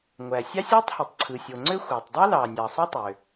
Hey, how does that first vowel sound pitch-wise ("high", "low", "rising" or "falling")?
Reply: low